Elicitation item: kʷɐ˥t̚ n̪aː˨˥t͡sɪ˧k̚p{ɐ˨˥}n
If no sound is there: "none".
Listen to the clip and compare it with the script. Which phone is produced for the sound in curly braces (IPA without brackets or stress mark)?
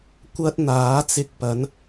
ɐ˨˥